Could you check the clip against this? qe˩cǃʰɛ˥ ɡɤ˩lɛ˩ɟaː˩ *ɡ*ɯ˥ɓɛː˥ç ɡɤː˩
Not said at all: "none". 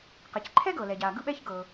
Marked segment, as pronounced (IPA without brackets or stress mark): ɡ